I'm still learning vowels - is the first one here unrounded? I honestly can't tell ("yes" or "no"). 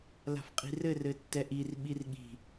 yes